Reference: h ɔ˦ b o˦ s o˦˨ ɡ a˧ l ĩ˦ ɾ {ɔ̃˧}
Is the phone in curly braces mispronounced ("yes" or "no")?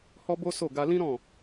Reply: yes